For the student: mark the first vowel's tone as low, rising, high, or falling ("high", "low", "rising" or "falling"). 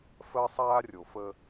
high